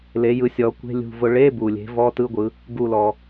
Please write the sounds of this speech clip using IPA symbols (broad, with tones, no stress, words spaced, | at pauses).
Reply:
le˩˧jɯ˩˧sʲɔ˩˧ kʷe̤˧˥˧lʲṳ˧˩vʊ˧˩ ɭe˧˥˧bu˩lʲe̤˩˧ vɔ˧˥˧tɯ˧˥˧ɡʷɯ˩˧ | ɡu˧˩lɔ˩